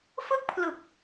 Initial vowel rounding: unrounded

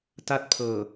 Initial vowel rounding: unrounded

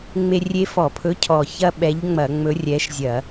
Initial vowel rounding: unrounded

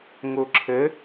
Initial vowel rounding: rounded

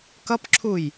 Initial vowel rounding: unrounded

